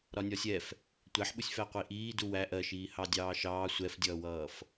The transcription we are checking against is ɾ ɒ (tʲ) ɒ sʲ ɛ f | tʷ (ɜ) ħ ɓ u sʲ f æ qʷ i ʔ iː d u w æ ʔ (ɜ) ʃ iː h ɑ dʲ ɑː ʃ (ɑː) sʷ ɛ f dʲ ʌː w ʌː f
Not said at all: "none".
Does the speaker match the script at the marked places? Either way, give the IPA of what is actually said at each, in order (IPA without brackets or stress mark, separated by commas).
nʲ, æ, ɜ, ɑː